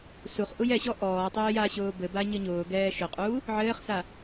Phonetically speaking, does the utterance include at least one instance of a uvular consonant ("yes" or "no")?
yes